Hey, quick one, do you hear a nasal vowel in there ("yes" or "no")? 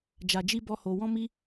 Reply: yes